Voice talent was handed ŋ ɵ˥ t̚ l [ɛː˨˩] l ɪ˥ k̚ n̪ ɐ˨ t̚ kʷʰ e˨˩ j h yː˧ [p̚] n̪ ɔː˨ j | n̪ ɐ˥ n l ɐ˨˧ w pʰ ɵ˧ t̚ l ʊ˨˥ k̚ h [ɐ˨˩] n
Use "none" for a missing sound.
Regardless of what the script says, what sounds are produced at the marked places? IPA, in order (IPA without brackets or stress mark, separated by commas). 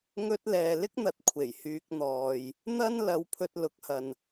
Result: ɛː˨, k̚, ɐ˨